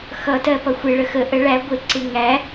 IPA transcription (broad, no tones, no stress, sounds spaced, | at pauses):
x ʌ t ɜ p ʌ xʷ ɪ ɭ ə x ə ʔ ə ɭ æ ɡʷ ɪ ǀ ɪ ŋ æ